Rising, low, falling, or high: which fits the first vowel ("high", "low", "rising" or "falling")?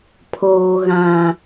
low